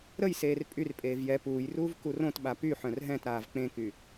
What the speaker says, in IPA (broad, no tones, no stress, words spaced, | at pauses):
ɾəjseːr pʼyrpʼeːv jɛ puːjruːv kurõtɓa py ħœ̃rɦɛ̃tɾaːv k͡pẽky